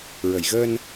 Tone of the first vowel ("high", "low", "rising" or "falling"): low